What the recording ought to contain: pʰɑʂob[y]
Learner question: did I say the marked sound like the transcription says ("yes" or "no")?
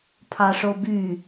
yes